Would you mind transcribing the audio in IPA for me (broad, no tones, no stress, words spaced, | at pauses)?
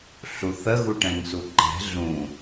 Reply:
ɬuθə ɣuʈɛ̃ŋsuǃɛ̤ ɮũ